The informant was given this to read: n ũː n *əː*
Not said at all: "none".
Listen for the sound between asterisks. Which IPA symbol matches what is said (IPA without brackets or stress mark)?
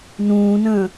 ə̃ː